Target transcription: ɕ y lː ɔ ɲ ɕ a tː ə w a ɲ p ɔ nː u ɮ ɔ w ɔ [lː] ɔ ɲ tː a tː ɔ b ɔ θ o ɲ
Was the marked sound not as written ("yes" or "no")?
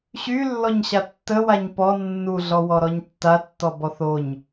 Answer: yes